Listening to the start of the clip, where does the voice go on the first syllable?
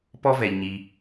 high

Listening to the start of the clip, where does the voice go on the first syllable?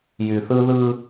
low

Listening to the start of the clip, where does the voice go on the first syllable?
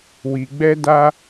low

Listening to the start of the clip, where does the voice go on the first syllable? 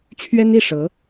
high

